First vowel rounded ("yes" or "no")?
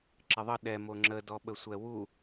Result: no